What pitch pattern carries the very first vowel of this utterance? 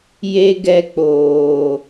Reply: high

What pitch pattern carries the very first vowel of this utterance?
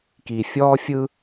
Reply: low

